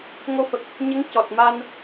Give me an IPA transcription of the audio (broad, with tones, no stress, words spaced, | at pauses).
ŋo˧fə˨˩k̚ | ɲə˧˥ŋ cɔ˨˩t̚ma˧n